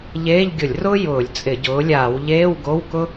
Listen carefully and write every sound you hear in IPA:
ʎ eː˧˥˧ ʎ ɡʲ ʊ˧˩˧ lʲ r ʊː˥ j ʊː˧˩˧ lʲ t͡sʼ ɪ˧˩˧ ɟ ʊː˨˥ lʲ aː˧˩˧ w ʎ eː˧˥˧ w ɡ o˧˥˧ w k ʊ˥

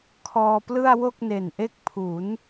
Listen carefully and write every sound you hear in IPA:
kʰ ɔː˧ p l ɯ˥˩ a̯ w o˥˩ k̚ n e˨˩ n ʔ e˦˥ k̚ pʰ u˩˦ n

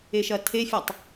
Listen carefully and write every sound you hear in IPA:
e ʃ ɐ tʰ e fʲ a tˤ

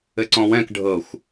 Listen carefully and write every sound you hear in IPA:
ɘ ǀ ɔ̃ w ɛ̃ k ɖʱ ɤ xʷ

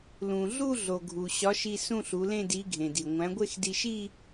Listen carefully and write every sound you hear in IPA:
l ũ˩ ɮ u˥˧ ɮ o˩ ɡʱ u˩ ɕ ɒ˨˥ ʃ i˧ s ũ˥˧ ɬ u˩˧ l ẽ˥˧ d i˨˥ ɡʱ ẽ˩ d i˩ ŋʷ æ̃˨˥ ɡʷ e˥˧ x d i˧ ʃ i˥˧

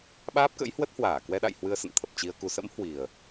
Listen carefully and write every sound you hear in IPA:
ɓ aː˦˥ p̚ k ə̰˧˥ j h w ə˦˥ t̚ h w aː˧˩ k w ɛ˧ ɗ a̰˧˨ j h w ɨ˧ ə̯ s ə̰˧˨ n t̪ʰ ə˨˩ p̚ t͡ɕ i˧ ə̯ k u˨˩ s ə̰˧˥ m h w i˨˩ ə̯

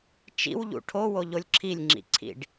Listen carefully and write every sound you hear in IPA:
t͡ʃ ḭ w ʎ ṵ ʈʰ o w o ʎ o lʲ ǁʰ i lʲ ŋ͡ǁ ḭ ǀʰ ḭ ɖ

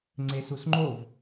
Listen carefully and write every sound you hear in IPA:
ŋ͡ǀ e s u s ŋ͡ǃ o v

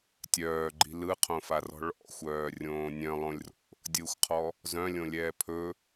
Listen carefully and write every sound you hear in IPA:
tʲ œː ɡ͡ǃ i̤ l ɯ qʰ õ f a r ɔ̤ ɭ ɔ̰ xʷ œː rʲ õː nʲ œ̃ lˠ õ lʲ r o̰ | dʲ ɯ xʷ qʰ ɔ | z œ̃ lʲ õ lʲ ɛː pʰ ɵ

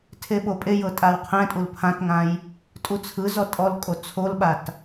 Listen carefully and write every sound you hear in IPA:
tʰ e ɓ o pʼ e j ɤ tʼ a w qʰ ɛ̃ tʼ u l pʰ ã t ŋ ã j | tʼ u t͡sʰ ɯ z ɔ tʼ ɔ l kʼ o t͡sʰ o l ɓ a t

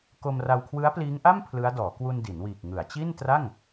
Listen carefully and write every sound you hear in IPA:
k o˧ m r a˧ w kʰ w ɯ˦˥ a̯ p l iː˦˥ ŋ ʔ a˥˩ m pʰ l ɯ˦˥ a̯ d ɔː˩˦ k w u˧ n d i˩˦ n w iː˨˩ k̚ ŋ ɯ˩˦ a̯ t͡ɕ i˥˩ n t r a˥˩ ŋ

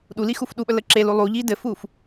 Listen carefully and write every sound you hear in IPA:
ɗ u l i x u f ɗ u ɓ ə l ə ǁ e l u lˠ u ʎ i d ɘ f u f

